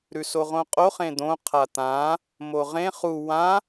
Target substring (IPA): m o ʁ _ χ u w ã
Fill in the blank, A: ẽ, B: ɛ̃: A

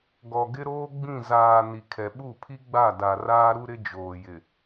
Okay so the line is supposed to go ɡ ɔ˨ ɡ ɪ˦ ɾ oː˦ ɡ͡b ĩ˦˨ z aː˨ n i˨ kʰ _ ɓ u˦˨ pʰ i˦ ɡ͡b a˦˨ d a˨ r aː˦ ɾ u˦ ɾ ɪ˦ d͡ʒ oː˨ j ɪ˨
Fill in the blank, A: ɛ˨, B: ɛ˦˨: A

